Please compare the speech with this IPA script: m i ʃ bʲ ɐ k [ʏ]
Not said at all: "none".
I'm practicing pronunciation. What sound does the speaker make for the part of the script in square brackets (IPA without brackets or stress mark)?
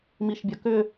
ʏ